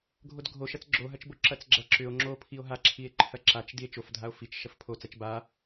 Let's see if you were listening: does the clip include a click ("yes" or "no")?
yes